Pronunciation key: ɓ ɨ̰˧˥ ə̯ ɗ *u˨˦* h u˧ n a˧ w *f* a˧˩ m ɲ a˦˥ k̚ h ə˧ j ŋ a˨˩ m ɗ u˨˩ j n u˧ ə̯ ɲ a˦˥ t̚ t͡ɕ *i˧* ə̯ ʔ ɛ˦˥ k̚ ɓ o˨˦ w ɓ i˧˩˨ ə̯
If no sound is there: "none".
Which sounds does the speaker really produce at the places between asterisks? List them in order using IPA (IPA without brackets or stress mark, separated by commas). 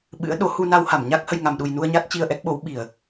o˨˦, h, i˧